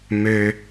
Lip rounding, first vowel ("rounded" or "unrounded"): rounded